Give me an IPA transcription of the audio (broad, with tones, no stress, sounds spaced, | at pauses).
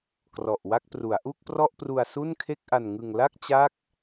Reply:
k r ɔ˨˩ ʔ w a˥˩ k̚ p r u˩˦ a̯ ʔ u˥˩ k̚ p r ɔ˥˩ ʔ p r u˧ a̯ s u˥˩ n kʰ e˥˩ k̚ ʔ a˧ n ŋ ɯ˧ ŋ l a˥˩ k̚ t͡ɕ a˦˥ k̚